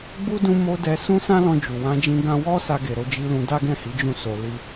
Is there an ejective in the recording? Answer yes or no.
no